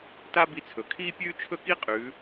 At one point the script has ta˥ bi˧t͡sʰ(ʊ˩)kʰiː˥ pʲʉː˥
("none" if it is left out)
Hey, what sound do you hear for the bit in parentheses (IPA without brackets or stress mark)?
ɵ˩